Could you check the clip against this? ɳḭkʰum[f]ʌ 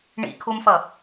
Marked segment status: correct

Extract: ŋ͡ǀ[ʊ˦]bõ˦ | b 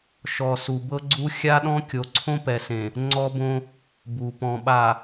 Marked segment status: incorrect: ɔ˦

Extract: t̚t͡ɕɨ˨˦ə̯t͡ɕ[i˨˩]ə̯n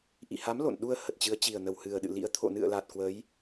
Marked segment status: correct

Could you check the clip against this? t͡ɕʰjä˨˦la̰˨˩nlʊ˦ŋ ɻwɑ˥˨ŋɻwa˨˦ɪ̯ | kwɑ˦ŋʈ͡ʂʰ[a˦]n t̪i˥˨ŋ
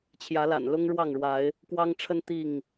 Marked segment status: incorrect: ə˦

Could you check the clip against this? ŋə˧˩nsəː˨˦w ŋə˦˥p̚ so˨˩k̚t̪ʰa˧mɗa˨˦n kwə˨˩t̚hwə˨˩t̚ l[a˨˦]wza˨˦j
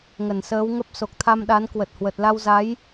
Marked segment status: incorrect: a˧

